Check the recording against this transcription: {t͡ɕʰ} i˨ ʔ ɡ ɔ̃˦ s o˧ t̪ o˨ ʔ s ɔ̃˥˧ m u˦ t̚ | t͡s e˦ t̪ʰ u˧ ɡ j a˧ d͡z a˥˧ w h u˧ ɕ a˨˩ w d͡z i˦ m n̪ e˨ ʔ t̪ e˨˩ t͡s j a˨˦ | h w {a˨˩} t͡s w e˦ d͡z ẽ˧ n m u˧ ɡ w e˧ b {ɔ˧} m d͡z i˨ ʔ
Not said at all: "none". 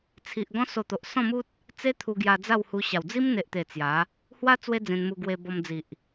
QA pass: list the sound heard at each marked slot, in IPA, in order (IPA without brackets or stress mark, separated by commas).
t͡sʰ, a˦, ɔ˧